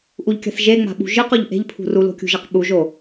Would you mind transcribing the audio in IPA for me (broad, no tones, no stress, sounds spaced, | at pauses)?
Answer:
ʔ u ʎ kʲ a̤ θ ʒ e ŋ͡m a̤ ɓ ṳ ʒ ɯ q o ʎ ʔ e̤ ʎ pʰ ṳ r u l o̤ kʲ ṳ ʒ a q ɓ u ʒ o